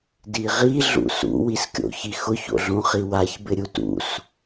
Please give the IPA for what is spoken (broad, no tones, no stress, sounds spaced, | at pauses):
d i ʁ i ɮ ṵ s ṵ w i s kʲ o̰ ç i x ʊ ç o̰ ɮ ũ χ i w a ç b ɪ ɾʲ u t ṵ s